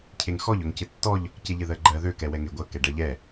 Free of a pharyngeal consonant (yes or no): yes